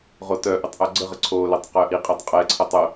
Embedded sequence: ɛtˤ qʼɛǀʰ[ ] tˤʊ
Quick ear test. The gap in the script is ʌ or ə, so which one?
ʌ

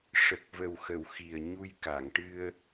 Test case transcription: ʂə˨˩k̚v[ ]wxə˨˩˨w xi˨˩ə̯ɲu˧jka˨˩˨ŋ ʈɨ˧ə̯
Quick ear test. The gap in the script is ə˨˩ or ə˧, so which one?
ə˨˩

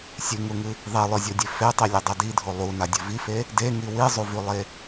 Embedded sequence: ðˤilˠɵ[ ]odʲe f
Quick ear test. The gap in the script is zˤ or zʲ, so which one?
zʲ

